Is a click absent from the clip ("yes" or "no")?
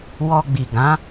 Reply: yes